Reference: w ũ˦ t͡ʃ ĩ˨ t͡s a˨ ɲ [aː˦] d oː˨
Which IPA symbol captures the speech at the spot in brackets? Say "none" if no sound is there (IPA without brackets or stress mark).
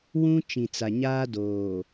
aː˦